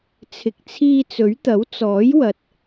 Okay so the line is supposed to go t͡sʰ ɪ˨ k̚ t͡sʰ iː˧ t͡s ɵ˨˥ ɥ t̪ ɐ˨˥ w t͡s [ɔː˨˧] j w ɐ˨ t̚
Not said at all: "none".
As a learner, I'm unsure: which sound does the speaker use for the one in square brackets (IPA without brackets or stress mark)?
ɔː˨˥